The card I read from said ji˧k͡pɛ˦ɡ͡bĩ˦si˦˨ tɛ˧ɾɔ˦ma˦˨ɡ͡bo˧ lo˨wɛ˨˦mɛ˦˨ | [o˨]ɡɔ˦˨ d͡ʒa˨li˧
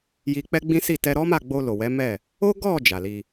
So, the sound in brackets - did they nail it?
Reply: no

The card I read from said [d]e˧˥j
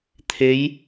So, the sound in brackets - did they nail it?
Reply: no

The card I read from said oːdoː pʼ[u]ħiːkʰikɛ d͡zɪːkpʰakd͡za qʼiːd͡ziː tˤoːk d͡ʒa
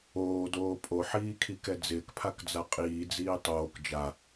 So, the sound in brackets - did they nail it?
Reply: no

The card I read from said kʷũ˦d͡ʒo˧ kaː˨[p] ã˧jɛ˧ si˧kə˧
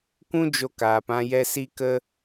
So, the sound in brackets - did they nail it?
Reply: yes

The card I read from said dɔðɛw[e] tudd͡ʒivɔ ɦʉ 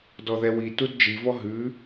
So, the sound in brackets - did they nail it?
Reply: no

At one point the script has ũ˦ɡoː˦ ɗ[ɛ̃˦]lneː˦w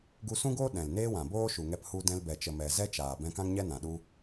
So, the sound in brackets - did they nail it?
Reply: no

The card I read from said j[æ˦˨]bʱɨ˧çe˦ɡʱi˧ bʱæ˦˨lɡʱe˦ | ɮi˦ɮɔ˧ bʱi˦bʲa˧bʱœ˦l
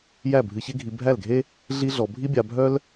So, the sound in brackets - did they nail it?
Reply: yes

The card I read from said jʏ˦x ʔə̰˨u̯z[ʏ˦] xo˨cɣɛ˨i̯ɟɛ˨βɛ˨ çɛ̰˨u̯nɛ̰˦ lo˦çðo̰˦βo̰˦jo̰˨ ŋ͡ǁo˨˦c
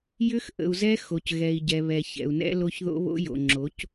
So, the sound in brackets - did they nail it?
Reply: no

